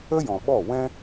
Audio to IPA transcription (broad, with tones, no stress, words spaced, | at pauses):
ə˦jɔ̃˨ɓɔ˦˨ wɛ̃˦